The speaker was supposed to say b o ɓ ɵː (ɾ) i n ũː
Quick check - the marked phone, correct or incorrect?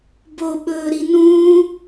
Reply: correct